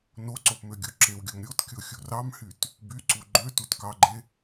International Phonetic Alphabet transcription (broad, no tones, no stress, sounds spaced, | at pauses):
n o ǀ o p m ø ɡʲ o ǁ e w ɡʲ o m ɾʲ o t kʲ o xʲ u r ɑ m h y t | b y ǀ u ɡ͡ǃ ø t u t k ɑ ɡ͡ǃ e